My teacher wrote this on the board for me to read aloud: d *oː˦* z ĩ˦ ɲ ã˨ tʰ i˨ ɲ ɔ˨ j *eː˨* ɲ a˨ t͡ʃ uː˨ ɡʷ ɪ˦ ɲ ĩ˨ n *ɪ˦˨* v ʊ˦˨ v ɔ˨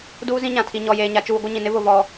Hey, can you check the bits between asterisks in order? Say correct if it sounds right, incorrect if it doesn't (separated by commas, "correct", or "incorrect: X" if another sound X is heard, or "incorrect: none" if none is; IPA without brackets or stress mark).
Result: incorrect: uː˦, correct, incorrect: ɪ˦